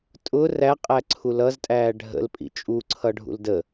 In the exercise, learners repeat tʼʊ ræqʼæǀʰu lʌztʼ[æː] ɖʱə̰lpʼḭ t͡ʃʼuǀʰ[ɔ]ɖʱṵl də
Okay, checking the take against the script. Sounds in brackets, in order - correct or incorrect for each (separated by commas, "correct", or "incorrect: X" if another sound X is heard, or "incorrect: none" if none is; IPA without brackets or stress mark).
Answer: correct, incorrect: ʌ